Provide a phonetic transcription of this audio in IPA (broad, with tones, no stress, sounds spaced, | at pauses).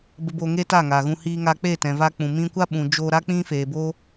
b ə˧ b o˧ ŋ e˦ t a˦˨ ŋ a˨ ɣ ũ˧ h iː˧ ŋ a˧ k͡p e˦˨ t ɛ̃˨ v a˧ k͡p ũ˨ m ĩ˧ kʷ a˦ ɓ ũ˨ d͡ʒ oː˧ ɾ a˦ k͡p ĩ˦ f eː˨ b o˦